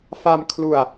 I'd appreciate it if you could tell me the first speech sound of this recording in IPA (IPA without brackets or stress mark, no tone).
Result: f